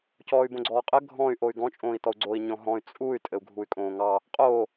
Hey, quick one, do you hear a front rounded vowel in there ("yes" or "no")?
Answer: yes